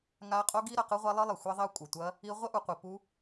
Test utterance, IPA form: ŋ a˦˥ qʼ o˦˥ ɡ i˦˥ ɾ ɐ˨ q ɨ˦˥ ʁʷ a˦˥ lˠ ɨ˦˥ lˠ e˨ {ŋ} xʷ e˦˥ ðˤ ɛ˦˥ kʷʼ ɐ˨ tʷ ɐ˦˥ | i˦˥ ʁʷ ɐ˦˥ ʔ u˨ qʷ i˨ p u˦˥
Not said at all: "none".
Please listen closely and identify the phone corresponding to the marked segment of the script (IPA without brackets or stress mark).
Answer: none